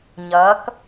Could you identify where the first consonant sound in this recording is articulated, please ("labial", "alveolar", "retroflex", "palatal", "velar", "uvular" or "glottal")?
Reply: palatal